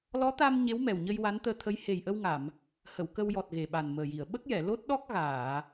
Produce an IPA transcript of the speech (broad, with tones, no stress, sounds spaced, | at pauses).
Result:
l ɔ˧˥ t̪ a˧ m ɲ e˧˥ w m ɛ˨˩ w ɲ ə˧ j w a˧˥ n t̪ əː˧ t̪ʰ ə˧˥ j h e˨˩ j ʔ ə˧ w ŋ a˨˩˨ m | h ə˨˩˨ w k ə˧ w j ɔ˨˩ t̚ ɣ e˨˩ ɓ a˨˩ n m əː˨˩ j i˨˩˨ ə̯ ɓ ə˦˥ k̚ j ɛ˨˩˨ l o˦˥ t̚ ɗ ɔ˦˥ k̚ ɣ aː˨˩˨